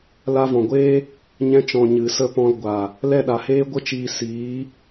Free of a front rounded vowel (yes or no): yes